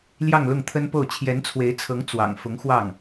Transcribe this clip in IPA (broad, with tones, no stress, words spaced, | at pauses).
ljɑ˥˧ŋlʊ˥˩ŋt̪ʰə˥npo˥˩ʊ̯ t͡ɕʰjɛ˧˥nt͡sʰwe˧˥ɪ̯t͡sʰɤ˧˥ŋ t͡swɑ̰˨˩ŋ fʊ˧˥ŋxwɑ˥˩ŋ